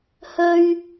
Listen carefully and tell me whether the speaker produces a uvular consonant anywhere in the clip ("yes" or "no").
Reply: no